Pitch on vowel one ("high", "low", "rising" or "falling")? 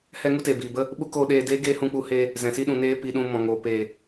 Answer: high